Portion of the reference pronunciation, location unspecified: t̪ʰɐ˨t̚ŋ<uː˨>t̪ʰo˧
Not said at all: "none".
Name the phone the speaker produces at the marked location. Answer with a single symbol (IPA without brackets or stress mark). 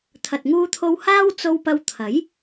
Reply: uː˧